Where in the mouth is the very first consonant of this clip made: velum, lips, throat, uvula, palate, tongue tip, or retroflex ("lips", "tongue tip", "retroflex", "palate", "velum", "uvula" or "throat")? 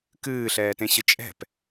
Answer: velum